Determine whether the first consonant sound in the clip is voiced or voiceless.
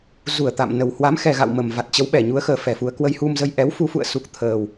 voiced